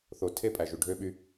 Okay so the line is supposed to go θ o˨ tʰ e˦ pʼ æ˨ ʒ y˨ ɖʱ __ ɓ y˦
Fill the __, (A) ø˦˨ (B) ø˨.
A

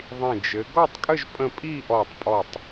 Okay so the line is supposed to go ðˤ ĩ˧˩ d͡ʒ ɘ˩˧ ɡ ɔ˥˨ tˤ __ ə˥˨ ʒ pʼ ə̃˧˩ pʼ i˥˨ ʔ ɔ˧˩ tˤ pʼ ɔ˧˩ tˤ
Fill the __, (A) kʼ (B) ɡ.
A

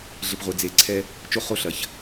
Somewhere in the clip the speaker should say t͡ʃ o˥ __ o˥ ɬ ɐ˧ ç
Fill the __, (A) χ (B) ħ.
A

